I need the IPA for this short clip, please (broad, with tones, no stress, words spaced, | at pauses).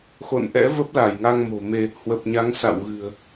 xo̰˧˨nʔɛ̰˧˥ və˦˥p̚la˧˩jŋa˧ŋmo̤˨˩ me˧ | hwə˨˩p̚ɲa˨˦ŋ sa̰˧˨w ɣɨ̤˨˩ə̯